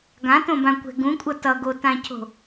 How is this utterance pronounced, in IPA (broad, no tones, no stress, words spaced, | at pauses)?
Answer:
ɡãtõbãkʷɛ̤ ɡũkʷʼʌ tʌɡotãcʰo̤